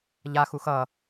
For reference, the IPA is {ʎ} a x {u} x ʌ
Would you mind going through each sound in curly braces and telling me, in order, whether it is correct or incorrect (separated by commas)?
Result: correct, correct